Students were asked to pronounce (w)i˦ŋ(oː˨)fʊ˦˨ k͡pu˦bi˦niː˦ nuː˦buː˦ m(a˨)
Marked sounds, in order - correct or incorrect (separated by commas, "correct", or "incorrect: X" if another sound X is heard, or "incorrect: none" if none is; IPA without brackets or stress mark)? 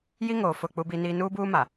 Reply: incorrect: j, correct, correct